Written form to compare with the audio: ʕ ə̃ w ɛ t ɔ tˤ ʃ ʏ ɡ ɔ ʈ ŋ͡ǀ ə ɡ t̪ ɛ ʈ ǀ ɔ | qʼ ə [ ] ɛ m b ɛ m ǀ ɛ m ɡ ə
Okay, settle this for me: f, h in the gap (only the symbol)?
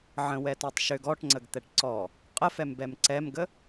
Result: f